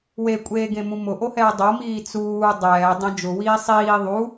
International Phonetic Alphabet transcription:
w e kʷʼ eː ɡ ẽ m ũ m ʊ ʔ o h ɛː dˤ o m iː t͡s uː dˤ ɛː dˤ ẽ d͡ʒ ʊ w iː sˤ iː ðˤ u

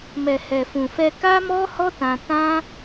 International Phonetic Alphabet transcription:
m ɛ˨ h ɛ˨ f ũ˨ f ɛ˧ k a˦ m ɔ˦ h ɔ˦ t ã˧ t ã˦

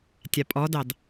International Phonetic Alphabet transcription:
tʲ a pʼ ɔ d ɑ d

